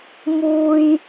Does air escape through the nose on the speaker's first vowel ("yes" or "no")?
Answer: no